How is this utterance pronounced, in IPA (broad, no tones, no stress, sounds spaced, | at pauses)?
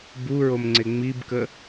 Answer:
b u ɹ o m ŋ͡ǀ e ŋ͡m i b k ə